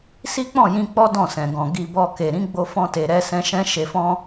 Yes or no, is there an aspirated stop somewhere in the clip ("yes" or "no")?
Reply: no